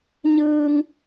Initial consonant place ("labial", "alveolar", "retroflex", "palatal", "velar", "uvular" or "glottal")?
palatal